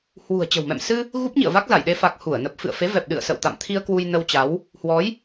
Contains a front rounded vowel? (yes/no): no